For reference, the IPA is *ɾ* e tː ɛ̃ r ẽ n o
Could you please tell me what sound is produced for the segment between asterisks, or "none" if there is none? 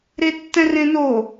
ɾ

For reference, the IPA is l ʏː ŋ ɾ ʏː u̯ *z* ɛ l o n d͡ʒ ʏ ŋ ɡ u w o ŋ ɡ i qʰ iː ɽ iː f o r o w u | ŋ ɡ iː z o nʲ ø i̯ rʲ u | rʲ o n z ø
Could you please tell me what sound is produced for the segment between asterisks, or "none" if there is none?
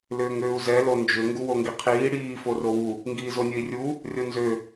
z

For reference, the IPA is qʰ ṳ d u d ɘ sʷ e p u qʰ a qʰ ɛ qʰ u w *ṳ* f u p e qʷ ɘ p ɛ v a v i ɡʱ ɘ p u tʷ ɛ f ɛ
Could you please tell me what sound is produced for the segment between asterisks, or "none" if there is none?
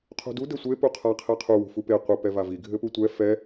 ṳ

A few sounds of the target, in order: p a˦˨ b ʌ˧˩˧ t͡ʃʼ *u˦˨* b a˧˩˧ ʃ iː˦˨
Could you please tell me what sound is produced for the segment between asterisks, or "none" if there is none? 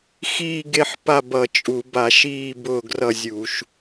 u˧˩˧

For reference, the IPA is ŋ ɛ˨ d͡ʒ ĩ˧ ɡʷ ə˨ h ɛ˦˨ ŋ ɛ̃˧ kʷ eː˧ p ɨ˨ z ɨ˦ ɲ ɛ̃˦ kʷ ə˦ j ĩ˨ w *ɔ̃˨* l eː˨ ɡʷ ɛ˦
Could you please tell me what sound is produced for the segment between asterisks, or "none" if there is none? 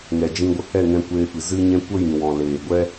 ɔ̃˨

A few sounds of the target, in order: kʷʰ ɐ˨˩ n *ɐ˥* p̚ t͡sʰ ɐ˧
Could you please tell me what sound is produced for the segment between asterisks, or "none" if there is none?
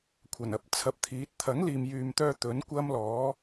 ɐ˨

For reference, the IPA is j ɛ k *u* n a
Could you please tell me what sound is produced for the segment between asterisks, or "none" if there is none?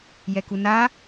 u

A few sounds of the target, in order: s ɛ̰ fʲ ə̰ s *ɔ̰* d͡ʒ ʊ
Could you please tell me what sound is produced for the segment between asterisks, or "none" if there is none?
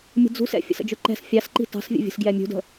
ə̰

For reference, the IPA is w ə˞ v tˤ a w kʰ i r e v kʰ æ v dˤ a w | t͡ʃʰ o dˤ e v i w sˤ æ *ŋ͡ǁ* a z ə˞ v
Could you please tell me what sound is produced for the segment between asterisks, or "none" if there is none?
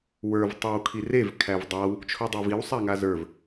ŋ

